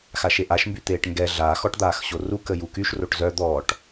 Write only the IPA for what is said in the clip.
x a ʃ e ʔ a ʃ m b y t̪ eː ʈ ŋ ɡ ɛ ɮ aː x ɔ ʈ d̪ aː x ɕ o r u k ə j u k y ʃ r o ʈ z œ d̪ ɔː ʈ

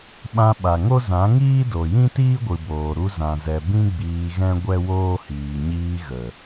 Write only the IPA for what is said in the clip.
ɓ ã˧ ɓ a˨ ŋ o˦ z ã˨˦ ŋ iː˦ d o˨ j ĩ˦ t iː˦ ɡʷ ɨ˨ b oː˨ ɾ u˧ z ã˨ z ɛ˨ b ĩ˦ ɡ͡b iː˧ ɣ ɛ̃˦ ɡʷ ɛ˦ w oː˦ h iː˨ ɲ iː˧ ɣ ə˨

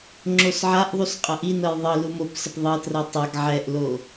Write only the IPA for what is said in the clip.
ŋ͡ǁ o s ʕ a ʔ ðˤ u s qʼ ɐ ʔ i n ɤ j ðˤ ɤ l u m o p s ə p ðˤ ɤ t r ɤ tˤ a ɡ ʕ ɛ ʔ l o

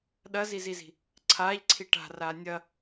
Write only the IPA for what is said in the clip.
ɗ ɐ z i z i z i̤ | ǀʰ aː ʎ ǀʰ i ʈ a̤ r aː nʲ ɐ

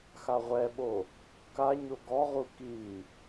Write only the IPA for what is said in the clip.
x a ʁʷ ɛ ɓ o | k a ɲ o ɡ ɔ ʁ u k i

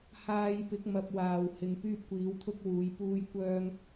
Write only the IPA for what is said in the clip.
h aː˨ j p ɪ˨˥ k̚ m ɐ˨ p̚ w aː˨˩ w h ɪ˨˧ ŋ p yː˥ p̚ kʷ iː˨˥ w t̪ʰ ʊ˥ k̚ w uː˨˧ j p uː˥ j kʷ œː˥ ŋ

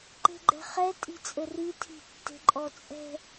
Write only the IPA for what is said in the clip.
ǃ e̤ ɡ͡ǃ ɛ̤ χ ɛ tʼ i̤ t͡sʼ ɘ r i tʰ i̤ tː e̤ ǃʼ ɔ t͡sʼ ɛ̤

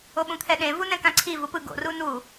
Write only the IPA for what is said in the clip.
o ɓ ũ t̪ʰ ɛ ɗ ẽ v u n ɛ̃ k ã ǀʰ i v u p ɯ ɡ o̰ r u n u

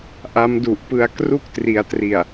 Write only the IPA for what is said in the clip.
ʔ a˦˥ m d u˨˩ ʔ p ɯ˧ a̯ k r u˥˩ k̚ t r i˩˦ a̯ t r i˨˩ a̯

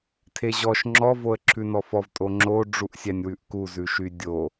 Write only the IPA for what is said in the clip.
tʰ e ʑ ɔ ʃ ŋ͡ǁ ɔ v o ə̯ ǁʰ ʉ n ɔ f ɔ v tʼ o ŋ͡ǁ o ɖ͡ʐ u ʔ sʲ æ nʲ w ʉ ʔ k u z ʉ ʃ y dʲ o

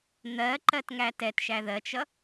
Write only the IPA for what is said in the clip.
n̪ ɜ ǃ ɜ t ŋ æ t ɛ t ʃ æ ð ɜ t͡ʃ ʌ

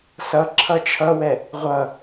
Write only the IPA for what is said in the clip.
s ʌ ǁʰ ʌ t͡ʃʰ ʌ w ɛ | ʁʷ ʌ

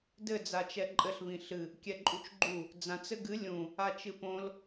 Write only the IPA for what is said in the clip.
d ɘ d͡z a t͡ʃ ɛ ǃʼ ɘ ɬ β ĩ ɬ ɨ | kʲ ɛ ǃʼ u t͡ʃ ɡ͡ǃ u | d͡z ã t͡s ɘ ɡ ɨ lʲ ũ | a t͡ʃ ɨ p õ l

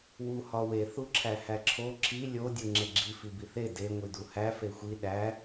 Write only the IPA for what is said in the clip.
w u h ɒ w e θ u ǁʰ æ h æ ǁʰ o ǁʰ i lʲ o dʲ u ŋ͡ǁ e ɡ͡ǁ i f i b i θ e d e ŋʷ i d u h æ f e xʷ i ɗ æ

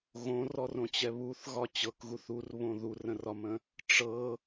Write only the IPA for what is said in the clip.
ɣ õ r ɔ r õ t͡ɕ ɛ β u θ ɣ ɒ t͡ɕ ɤ k ɣ u θ u r β õ ð u r ə̃ r ɒ m ə̃ | ʈ͡ʂ ɤ

